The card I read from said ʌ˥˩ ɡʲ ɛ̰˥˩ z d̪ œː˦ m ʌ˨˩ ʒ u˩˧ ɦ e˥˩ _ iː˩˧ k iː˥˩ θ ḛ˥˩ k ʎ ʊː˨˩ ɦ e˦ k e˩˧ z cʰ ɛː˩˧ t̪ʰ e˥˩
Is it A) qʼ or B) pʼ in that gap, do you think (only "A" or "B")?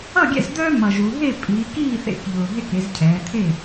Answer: B